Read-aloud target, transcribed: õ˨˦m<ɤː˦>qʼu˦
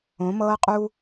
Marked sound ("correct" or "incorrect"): correct